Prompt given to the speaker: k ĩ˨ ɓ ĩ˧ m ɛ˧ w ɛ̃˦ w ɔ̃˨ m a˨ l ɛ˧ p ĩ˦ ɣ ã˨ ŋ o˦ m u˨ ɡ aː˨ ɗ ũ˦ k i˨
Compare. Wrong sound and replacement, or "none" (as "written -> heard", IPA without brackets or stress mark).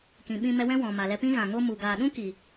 none